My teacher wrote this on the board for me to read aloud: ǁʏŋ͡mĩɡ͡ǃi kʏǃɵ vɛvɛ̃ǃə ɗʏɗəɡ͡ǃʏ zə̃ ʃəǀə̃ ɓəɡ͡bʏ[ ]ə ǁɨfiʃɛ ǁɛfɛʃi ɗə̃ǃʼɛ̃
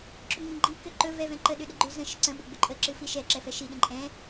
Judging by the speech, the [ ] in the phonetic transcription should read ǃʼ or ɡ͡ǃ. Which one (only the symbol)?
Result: ǃʼ